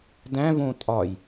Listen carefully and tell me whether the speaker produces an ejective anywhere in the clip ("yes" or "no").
yes